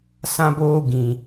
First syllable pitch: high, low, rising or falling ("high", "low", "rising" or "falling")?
high